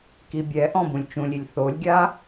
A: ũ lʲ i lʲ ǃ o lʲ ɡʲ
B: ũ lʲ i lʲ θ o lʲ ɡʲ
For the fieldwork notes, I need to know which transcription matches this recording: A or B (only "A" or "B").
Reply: B